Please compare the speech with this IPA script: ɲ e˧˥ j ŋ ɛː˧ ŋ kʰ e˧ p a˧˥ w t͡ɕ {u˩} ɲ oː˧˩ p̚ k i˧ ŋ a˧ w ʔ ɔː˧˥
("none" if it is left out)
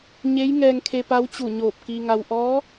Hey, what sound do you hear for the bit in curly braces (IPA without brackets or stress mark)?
u˧˩